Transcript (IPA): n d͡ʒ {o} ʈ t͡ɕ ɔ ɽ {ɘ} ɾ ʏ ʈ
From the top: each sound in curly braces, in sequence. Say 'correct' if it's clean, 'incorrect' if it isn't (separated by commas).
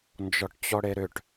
incorrect, incorrect